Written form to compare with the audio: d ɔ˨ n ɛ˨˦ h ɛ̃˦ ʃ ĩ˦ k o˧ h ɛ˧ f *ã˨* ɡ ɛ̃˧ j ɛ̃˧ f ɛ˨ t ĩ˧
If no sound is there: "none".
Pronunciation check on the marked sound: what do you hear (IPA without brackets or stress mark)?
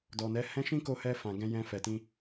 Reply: ã˨